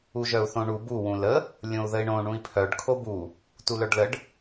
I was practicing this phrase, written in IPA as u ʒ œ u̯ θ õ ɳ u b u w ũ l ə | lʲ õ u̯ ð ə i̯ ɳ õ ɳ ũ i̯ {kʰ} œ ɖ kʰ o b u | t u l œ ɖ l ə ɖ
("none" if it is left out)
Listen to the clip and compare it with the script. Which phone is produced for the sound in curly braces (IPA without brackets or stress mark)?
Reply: pʰ